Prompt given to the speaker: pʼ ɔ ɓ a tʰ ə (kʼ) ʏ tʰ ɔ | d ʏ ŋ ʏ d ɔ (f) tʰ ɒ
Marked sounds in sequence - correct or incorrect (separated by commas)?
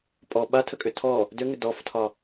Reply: correct, correct